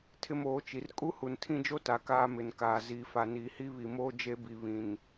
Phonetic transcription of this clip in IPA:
tʰ ɪ˦ m oː˨˦ t͡ʃ i˨ r kʼ u˦ h u˨ n tʰ ĩ˦ d͡ʒ o˦ t a˨ k aː˦ m ɪ˨ n k aː˨ z iː˨ f a˨ n iː˨ h i˦ β i˨ m oː˦ d͡ʒ e˦ b i˨ β ĩ˨ n

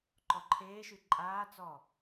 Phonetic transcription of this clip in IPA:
ǃ ɔ ǃʰ eː ʃ y ǃʼ aː t͡s ɔ

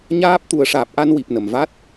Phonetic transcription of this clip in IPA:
ɲ aː˦˥ p̚ t̪ u˨˩˦ ə̯ ʂ aː˨˩ p̚ ʔ a˧ n w i˨˩ p̚ n ə˨˩ m v a˦˥ t̚

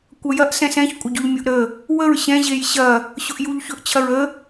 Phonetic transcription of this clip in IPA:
kʷ ɐ j ɐ ʔ s ɛ̃ s ɛ̃ ç kʷʼ ɐ ɟ ɵ ʎ mʲ ʊ ʔ ɾ ə | w ə ɹ ɕ ɛ̃ ʑ e j ɕ ɐ | ɕ ʊ ʔ j u ʎ ç ɵ ʔ t͡ɕʰ ɐ ɹ ə

